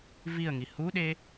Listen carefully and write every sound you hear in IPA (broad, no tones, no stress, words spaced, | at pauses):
viə̯ŋi huɗe